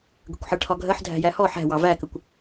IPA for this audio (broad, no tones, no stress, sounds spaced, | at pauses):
ɡ ə̤ kʷ ħ ɜ ʈʰ ɒ ɡʱ ɜ ħ dʱ æ̤ j æ h ɔ ħ æ̤ w ɑ v æ k ə kʷ